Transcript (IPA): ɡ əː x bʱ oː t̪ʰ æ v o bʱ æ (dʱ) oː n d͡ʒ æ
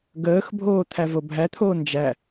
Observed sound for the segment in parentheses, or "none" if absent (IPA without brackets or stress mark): t̪ʰ